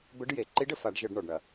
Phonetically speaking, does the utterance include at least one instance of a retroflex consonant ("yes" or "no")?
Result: yes